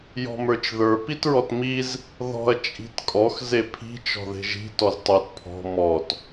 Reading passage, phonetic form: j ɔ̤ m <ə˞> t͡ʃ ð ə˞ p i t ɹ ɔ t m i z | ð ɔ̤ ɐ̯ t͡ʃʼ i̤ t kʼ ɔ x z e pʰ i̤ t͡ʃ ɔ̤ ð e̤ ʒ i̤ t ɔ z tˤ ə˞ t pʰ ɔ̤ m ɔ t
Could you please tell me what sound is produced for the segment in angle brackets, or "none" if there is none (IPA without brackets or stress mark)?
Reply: ə˞